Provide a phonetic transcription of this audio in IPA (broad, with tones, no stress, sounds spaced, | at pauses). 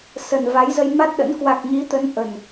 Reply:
s ə˨˩ n v a˨˦ j z ə˧ j m a˦˥ t̚ ɗ ə̰˧˥ n k w a˨˩ k̚ ɲ i˨˦ t̪ ə˨˦ n ʔ ə˨˩ n